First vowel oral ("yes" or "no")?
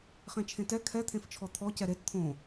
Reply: no